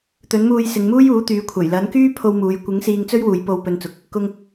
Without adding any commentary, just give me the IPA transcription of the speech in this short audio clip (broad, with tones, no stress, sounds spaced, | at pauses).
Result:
t̪ ɵ˨˥ n m uː˧ j s ɪ˨˧ ŋ m uː˥ j uː˨˥ t̪ yː˨˥ kʷʰ ɐ˨˩ j l ɐ˨˥ n k yː˥ pʰ o˧ w m uː˨˧ j kʷ ɪ˨˥ ŋ s iː˧ ŋ t͡s ɵ˥ ɥ w uː˨˧ j p o˧ w p ɵ˧ n t͡s ʊ˨˥ k̚ | k ʊ˧ ŋ